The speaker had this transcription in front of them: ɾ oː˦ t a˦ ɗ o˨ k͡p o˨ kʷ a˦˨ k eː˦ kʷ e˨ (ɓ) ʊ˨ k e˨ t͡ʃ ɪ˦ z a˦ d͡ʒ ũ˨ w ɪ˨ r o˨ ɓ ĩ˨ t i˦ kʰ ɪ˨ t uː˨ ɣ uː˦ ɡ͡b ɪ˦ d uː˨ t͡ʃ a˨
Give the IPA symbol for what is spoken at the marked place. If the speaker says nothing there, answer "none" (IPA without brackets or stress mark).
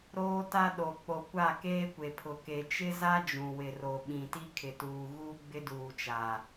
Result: pʰ